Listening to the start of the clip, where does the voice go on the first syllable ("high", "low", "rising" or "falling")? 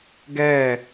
falling